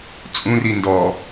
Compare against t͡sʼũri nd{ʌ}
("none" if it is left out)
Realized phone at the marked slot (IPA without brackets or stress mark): ɔ